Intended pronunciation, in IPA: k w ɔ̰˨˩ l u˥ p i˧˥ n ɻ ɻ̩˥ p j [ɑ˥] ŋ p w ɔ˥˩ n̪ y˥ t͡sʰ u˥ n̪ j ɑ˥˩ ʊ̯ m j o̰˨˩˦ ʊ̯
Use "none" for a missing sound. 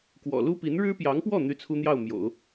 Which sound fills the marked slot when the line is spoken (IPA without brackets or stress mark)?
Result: ɑ˧˥